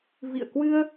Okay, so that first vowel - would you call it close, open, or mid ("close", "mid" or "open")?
close